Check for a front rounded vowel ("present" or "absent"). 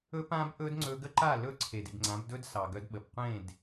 present